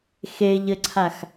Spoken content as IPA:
xeʎɘǀʰax

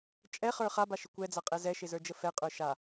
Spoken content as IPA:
t͡ʃʼɛχə˞ χabaʃɪ kʷɛd͡za qʼɛzɛʃɪzə˞ d͡ʒəfɛqʼə˞ ʃa

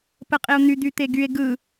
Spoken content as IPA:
pəqʼeo̯n̪y d̪yt̪eɡye̯ ɡɯ

